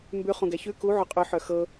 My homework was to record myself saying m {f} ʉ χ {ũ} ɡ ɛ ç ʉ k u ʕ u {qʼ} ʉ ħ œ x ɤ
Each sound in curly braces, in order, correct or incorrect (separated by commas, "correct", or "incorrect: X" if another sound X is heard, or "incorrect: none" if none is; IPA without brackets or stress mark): incorrect: b, correct, correct